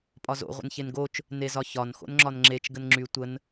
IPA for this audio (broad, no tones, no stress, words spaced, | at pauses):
pʼɒzo̰ ʁʷə̰nçenɡot͡ʃ | nezɒçɒn xo̰nŋ͡ǁɒnŋ͡ǁet͡ʃ ɡənŋ͡ǁy tʷən